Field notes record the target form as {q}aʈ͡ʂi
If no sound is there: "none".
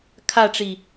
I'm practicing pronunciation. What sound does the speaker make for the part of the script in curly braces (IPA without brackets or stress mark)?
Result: kʰ